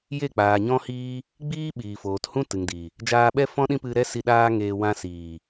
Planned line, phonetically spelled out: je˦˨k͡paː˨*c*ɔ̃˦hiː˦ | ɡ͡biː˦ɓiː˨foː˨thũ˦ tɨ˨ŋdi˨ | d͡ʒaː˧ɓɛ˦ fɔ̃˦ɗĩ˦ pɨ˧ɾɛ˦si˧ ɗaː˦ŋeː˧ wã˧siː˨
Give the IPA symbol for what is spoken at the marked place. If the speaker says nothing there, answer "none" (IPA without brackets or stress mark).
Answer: ɲ